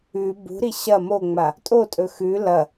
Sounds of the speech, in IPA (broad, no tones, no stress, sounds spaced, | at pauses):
ʉ b ṳ ɾ i ɕ ɐ m o ŋ͡m a | tʼ o tʼ ɵ x ʉ l ɐ